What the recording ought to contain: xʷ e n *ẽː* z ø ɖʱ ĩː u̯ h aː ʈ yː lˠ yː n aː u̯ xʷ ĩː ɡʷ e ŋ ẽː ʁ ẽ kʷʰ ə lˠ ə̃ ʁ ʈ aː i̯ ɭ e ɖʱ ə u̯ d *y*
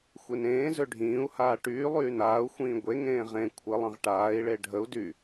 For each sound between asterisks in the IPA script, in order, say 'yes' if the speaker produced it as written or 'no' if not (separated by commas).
yes, yes